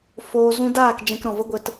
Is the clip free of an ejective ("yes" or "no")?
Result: yes